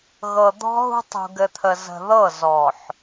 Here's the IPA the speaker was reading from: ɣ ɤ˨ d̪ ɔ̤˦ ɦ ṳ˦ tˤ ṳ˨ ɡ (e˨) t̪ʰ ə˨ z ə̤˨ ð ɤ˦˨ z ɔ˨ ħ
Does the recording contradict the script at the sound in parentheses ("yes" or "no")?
yes